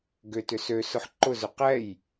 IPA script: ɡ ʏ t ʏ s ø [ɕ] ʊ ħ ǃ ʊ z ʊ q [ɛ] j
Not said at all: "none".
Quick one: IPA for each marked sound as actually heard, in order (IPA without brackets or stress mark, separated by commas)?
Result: s, ɛ